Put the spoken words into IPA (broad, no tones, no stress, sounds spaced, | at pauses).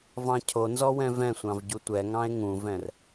v ɑ̃ cʰ o n z ɔ w ɛ̃ v ɛ̃ sʷ ɑ̃ v ɟ u tʷ ɛ ŋ ɑ̃ e̯ ŋ ũ v ɛ̃ r